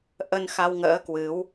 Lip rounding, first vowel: unrounded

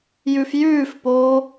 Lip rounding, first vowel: rounded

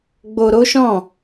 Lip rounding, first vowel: rounded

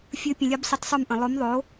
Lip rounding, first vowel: unrounded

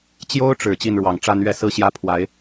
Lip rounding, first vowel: rounded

